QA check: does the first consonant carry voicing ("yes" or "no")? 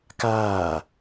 no